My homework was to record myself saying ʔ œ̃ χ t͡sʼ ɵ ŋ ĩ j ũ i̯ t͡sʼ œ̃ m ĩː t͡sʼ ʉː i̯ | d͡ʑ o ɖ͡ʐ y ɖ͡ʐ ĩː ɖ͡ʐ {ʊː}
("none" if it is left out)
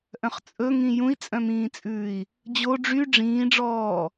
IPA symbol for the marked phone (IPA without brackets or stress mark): ɔː